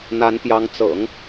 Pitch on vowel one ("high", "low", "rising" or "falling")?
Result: rising